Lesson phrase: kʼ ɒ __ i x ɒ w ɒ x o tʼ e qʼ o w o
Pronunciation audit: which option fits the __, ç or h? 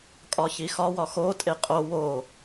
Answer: ç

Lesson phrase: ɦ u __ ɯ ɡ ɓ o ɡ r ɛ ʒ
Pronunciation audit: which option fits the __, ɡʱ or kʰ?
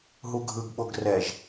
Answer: ɡʱ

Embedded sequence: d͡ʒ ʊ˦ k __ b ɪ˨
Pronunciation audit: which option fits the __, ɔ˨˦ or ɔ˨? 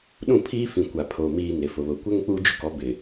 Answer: ɔ˨˦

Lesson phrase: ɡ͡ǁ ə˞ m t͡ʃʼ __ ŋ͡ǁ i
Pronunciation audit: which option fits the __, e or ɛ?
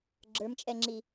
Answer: ɛ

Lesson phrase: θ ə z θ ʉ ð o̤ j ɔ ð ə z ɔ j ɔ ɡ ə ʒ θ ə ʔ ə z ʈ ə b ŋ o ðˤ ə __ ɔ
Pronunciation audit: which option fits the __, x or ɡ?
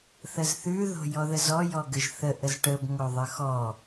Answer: x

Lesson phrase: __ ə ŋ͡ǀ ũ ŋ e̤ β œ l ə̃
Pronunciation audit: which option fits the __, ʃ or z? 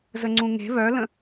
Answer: z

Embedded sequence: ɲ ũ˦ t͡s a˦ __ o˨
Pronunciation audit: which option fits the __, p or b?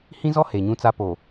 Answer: p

